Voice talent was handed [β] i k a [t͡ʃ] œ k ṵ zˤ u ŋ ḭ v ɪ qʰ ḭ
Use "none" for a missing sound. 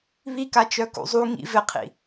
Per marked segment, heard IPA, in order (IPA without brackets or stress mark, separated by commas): β, t͡ʃ